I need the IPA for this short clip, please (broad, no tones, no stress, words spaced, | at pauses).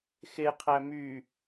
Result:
xeqʰæ my